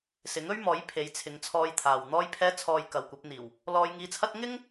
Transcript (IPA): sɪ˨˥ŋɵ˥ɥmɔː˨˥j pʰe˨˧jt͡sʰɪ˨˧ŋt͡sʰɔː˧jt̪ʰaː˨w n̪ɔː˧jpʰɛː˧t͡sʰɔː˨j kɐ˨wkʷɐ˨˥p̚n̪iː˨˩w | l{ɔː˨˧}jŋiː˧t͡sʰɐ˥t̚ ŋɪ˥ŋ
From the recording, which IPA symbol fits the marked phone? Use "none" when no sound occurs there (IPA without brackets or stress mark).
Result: ɔː˧